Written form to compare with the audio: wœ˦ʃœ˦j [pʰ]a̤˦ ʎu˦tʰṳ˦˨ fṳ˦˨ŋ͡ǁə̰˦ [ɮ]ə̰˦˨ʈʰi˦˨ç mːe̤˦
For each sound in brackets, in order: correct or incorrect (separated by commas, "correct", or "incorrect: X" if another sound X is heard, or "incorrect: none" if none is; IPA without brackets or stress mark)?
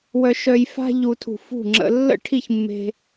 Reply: incorrect: f, incorrect: lː